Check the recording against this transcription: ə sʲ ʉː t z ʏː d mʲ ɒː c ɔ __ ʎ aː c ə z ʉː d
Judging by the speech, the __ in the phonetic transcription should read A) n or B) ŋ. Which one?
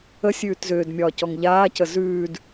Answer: B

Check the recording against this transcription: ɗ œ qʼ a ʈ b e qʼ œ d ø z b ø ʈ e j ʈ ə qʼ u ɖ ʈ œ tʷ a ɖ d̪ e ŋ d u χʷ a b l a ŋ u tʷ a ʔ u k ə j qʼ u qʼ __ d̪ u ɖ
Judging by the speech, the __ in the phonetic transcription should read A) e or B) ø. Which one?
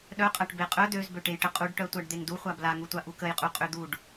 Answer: B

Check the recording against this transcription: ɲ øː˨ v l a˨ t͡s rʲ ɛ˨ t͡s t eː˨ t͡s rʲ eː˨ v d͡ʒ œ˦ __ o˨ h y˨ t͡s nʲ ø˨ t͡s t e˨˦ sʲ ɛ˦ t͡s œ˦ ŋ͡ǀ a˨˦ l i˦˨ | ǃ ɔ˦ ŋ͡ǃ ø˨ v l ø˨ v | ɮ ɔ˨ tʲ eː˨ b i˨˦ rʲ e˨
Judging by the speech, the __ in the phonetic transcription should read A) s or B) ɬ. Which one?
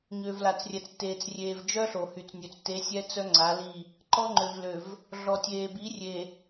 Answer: B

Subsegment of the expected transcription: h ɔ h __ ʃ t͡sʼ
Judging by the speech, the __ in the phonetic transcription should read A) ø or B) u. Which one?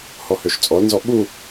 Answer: A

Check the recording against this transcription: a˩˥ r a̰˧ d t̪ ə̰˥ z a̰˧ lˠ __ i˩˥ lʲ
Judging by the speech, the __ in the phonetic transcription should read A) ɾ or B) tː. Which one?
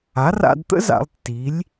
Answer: B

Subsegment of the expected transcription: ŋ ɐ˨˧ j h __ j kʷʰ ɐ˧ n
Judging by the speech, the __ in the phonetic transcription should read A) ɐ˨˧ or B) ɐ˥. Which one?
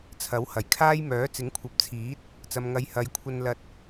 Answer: A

